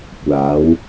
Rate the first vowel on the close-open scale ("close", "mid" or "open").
open